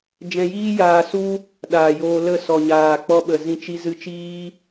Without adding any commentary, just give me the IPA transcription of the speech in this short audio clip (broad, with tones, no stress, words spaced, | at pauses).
d͡ʒɛ̃˧jiː˦jaː˧su˦ | ɗaː˨joː˧lə˦˨ sɔ˨ɲaː˨ k͡pɔ˧ ɓə˨zĩ˧t͡ʃi˧ zɨ˧t͡ʃiː˦